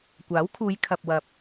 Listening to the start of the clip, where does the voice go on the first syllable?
rising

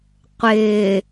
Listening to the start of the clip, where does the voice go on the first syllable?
low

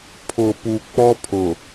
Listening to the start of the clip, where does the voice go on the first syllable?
low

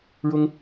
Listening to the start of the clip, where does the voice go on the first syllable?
high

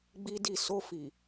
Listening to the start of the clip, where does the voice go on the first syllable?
high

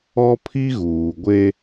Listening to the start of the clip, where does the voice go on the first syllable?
high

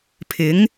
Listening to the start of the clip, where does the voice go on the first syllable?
rising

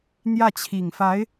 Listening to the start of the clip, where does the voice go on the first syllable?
falling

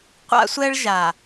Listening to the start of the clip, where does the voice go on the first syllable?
high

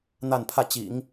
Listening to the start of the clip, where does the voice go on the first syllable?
falling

